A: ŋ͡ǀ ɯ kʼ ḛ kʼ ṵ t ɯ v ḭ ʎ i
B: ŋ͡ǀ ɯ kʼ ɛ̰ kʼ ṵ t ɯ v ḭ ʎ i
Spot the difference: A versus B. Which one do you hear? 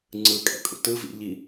B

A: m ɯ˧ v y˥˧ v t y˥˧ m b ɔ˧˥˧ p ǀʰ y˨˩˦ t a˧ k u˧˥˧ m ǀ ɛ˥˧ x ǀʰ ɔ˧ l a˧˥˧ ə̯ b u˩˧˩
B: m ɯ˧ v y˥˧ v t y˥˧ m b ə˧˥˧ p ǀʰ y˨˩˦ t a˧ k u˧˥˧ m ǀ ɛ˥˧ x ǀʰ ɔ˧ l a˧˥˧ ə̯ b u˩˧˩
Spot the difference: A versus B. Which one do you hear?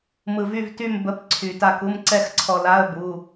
B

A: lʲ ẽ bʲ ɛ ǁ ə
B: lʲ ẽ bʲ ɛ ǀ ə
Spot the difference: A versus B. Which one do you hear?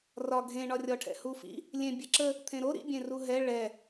A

